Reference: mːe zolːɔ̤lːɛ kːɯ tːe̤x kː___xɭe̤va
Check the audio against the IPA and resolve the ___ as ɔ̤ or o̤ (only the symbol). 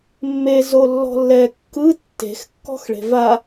ɔ̤